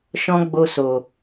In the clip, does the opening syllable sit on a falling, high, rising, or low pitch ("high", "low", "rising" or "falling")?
high